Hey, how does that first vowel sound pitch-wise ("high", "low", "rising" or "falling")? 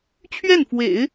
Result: falling